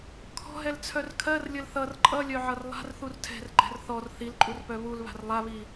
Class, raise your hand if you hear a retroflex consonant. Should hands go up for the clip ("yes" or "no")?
no